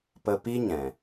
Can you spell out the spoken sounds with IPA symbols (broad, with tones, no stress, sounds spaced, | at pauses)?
p ə˧ p i˦ ɲ ɛ̃˨